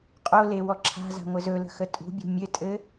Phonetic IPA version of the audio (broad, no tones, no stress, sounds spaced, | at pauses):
qʼ o l e w ɔ ǁʰ a̤ z a̤ ŋʷ ɘ z ɵ l ə̤ x ə tʼ ṳ bʲ ṳ mʲ ɘ tʼ ɘ